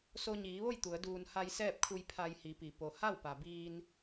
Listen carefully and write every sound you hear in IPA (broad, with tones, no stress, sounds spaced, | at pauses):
s o˧ ɲ iː˩˧ ʋ o˥˨ j t̪ u˩˧ ə̯ d uː˧ n h a˧ j s ɛː˥˨ p̚ kʰ u˧ j pʰ a˧ j h i˩˧ p i˩ p o˩ h a˥˨ w p a˩ b iː˧ n